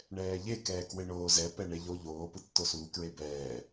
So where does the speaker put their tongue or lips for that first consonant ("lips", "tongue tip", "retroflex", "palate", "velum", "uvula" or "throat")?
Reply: retroflex